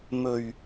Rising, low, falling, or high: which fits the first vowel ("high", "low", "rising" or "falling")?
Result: low